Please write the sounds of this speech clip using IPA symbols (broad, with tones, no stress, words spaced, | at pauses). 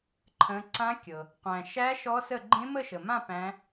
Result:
ǃʰə̃˦˥ ǀã˦˥kʲɤ˨ | qʷæ̃˨ʃæ˦˥ ʃɔ˦˥sə˥˧ ɡ͡ǃẽ˦˥mə˥˧ʃə˨mã˥˧ pæ̃˦˥